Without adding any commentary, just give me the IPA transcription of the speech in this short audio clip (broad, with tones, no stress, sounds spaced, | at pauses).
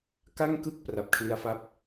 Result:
k a˥˩ ŋ k ɯ˥˩ k̚ p r a˨˩ p̚ kʰ l i˧ a̯ f a˥˩ p̚